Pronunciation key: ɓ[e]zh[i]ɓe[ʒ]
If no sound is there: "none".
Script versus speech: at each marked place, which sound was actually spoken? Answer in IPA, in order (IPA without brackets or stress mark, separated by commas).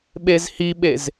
e, i, z